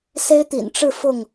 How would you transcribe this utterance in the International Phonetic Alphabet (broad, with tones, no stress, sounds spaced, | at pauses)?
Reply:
s e˦ ɪ̯ t̪ ḭ˨˩ n ʈ͡ʂ ɻ̩˥˨ f ʊ˥˨ ŋ